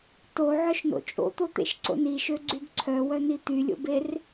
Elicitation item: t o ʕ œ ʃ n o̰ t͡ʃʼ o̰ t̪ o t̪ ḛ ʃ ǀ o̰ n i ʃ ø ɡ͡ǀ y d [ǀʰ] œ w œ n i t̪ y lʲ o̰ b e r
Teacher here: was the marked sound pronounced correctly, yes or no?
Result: yes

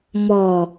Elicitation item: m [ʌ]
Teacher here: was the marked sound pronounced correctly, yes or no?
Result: no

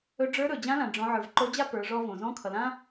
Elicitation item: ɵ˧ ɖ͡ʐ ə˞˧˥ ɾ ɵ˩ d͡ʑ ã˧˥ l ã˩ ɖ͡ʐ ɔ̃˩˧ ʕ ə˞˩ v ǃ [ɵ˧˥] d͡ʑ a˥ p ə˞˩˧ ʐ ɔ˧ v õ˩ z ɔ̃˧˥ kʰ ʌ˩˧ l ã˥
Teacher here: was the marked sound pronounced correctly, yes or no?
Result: no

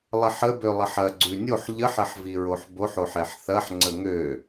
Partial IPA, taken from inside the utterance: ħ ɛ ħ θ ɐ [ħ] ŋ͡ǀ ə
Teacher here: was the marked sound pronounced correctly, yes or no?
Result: yes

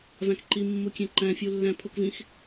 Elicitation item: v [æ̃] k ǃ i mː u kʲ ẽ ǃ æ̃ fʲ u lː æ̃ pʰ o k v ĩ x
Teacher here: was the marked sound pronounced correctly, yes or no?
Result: yes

